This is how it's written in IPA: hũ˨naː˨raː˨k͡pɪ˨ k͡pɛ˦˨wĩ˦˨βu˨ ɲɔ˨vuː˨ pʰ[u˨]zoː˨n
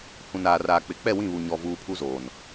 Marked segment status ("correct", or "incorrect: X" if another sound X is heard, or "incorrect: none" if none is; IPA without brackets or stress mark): incorrect: u˦